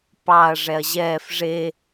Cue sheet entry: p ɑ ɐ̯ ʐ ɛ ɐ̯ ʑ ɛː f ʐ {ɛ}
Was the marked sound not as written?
yes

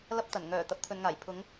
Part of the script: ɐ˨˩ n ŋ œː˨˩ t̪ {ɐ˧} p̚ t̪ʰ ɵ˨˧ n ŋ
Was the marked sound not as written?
yes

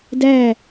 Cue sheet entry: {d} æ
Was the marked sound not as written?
no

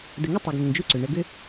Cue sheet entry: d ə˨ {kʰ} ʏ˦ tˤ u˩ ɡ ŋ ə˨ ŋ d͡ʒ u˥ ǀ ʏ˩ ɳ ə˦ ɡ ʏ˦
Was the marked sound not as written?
yes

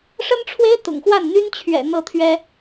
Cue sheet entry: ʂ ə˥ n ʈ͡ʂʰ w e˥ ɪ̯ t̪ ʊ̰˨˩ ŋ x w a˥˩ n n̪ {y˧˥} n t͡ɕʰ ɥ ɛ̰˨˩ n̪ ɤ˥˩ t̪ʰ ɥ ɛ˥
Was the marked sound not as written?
yes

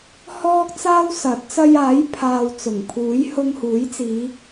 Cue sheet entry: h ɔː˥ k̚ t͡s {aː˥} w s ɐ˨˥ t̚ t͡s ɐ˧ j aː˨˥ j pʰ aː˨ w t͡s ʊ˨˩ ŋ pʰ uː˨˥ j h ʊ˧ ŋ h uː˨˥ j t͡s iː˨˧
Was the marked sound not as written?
no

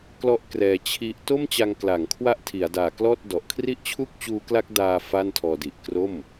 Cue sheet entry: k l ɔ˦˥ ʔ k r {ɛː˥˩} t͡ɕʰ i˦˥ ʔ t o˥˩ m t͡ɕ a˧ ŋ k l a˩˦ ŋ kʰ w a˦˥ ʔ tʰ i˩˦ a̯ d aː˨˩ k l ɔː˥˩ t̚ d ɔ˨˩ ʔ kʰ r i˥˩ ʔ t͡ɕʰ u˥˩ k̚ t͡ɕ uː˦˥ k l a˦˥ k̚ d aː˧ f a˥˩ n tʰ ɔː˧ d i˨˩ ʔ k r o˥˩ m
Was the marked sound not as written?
yes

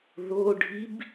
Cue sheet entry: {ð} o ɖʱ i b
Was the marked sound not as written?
no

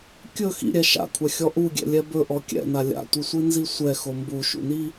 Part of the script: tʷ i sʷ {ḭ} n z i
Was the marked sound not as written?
yes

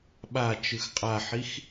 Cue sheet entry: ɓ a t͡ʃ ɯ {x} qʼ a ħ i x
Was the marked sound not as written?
no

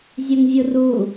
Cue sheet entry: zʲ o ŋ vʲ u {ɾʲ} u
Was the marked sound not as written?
yes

